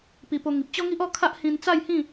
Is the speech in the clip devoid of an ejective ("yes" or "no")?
yes